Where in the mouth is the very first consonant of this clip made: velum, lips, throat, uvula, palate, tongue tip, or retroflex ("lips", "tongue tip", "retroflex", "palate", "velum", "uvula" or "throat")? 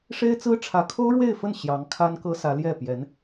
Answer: retroflex